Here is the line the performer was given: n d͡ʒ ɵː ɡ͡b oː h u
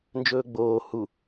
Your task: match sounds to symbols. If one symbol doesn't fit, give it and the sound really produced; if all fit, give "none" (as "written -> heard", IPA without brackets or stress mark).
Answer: none